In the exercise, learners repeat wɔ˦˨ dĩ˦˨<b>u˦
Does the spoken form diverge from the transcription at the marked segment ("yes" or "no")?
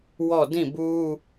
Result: no